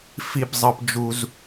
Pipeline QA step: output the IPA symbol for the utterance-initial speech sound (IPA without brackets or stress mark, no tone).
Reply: f